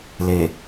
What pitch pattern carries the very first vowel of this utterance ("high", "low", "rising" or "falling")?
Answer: low